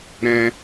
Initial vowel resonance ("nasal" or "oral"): nasal